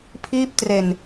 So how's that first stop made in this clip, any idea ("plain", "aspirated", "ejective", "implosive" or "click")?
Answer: aspirated